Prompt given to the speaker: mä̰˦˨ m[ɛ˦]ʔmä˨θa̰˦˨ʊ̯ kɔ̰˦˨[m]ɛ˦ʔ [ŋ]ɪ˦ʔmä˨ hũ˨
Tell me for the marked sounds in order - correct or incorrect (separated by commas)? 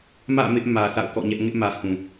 incorrect, incorrect, correct